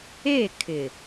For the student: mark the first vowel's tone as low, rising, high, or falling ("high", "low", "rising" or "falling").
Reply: falling